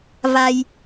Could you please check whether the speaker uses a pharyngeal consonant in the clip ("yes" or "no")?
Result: no